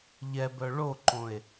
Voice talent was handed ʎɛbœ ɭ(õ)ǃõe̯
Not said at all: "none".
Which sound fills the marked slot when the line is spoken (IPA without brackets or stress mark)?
o